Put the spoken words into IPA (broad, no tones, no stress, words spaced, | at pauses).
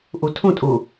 ʔutʰũ tʼu